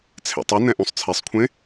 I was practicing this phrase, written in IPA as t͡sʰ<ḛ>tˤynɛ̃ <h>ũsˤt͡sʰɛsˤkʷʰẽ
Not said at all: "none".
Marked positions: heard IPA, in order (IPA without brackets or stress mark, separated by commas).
ḛ, ʔ